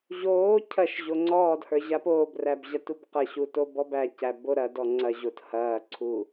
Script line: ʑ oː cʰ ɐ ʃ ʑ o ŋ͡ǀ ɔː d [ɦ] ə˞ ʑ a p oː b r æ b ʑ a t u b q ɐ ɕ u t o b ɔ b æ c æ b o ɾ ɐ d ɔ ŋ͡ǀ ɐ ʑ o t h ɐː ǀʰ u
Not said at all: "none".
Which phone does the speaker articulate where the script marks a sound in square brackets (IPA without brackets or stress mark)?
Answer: h